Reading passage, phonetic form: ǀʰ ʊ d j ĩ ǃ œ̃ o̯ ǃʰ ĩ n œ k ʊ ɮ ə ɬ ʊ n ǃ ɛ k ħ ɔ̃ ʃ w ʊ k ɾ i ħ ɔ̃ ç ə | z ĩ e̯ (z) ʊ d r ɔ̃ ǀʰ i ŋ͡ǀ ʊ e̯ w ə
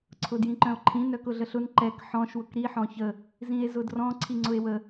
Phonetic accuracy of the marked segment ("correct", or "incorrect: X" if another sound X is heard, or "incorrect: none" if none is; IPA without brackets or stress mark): correct